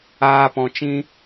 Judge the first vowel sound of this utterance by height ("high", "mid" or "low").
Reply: low